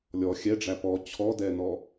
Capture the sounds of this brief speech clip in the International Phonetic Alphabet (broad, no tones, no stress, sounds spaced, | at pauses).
lʲ ɔ xʲ ɛ ɖ͡ʐ æ p ɔ t͡ɕʰ ɔ d ɛ n ɔ